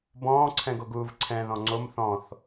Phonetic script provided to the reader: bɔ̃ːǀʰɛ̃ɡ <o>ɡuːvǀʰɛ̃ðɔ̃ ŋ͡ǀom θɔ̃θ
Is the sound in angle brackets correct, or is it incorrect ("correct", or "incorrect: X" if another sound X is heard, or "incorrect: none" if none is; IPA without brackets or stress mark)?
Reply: correct